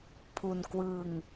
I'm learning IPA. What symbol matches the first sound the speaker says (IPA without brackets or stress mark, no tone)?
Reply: pʰ